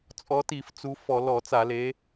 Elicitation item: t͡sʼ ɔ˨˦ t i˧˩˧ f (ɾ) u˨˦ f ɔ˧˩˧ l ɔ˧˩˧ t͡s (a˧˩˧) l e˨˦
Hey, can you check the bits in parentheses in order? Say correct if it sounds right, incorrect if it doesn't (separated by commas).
incorrect, correct